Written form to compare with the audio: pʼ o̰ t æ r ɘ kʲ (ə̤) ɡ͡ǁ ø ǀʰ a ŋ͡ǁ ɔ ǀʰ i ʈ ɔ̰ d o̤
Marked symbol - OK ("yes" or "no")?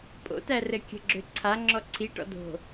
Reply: yes